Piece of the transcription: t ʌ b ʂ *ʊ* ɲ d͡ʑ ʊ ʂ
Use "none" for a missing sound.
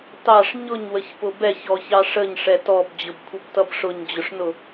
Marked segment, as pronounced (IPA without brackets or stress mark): ʊ